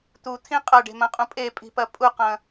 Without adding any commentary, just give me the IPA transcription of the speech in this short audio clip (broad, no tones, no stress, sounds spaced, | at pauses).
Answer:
t̪ u t̪ʰ ĩ qʼ ɐ ɖ e̤ m ɐ̃ qʼ ũ pʼ e pʼ i̤ p ɐ pʼ u q ɐ̃